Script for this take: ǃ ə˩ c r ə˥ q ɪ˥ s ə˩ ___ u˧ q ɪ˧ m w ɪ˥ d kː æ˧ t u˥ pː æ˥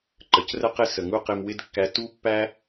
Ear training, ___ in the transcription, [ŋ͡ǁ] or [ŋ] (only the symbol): ŋ